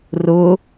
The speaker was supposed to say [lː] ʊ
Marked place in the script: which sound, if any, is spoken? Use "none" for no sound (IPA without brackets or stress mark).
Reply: r